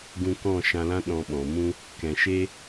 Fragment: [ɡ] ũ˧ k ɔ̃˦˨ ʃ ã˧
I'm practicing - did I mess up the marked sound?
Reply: no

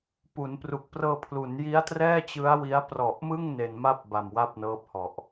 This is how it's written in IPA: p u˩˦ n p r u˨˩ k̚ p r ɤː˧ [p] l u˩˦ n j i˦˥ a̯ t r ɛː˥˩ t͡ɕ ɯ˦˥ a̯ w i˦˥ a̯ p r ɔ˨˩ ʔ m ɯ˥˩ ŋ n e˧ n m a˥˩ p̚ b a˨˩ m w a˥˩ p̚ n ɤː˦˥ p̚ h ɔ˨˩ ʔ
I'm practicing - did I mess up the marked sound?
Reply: yes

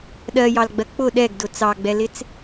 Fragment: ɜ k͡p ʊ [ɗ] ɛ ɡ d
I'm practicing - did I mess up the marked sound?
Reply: no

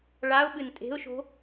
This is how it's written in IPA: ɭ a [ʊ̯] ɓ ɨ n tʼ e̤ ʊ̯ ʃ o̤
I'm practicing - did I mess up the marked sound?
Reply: no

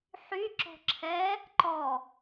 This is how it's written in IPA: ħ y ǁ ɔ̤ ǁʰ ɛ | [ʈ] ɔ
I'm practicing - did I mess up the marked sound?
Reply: yes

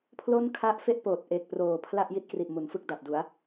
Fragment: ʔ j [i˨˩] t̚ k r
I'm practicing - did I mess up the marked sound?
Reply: yes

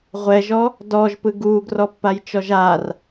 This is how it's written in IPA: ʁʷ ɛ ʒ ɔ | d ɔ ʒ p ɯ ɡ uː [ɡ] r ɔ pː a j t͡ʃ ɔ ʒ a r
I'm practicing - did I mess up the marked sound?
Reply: no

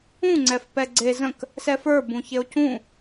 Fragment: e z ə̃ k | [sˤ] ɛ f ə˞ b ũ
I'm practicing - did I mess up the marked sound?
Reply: yes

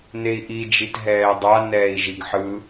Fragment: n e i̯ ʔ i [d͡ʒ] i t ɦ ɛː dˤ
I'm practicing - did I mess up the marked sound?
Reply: no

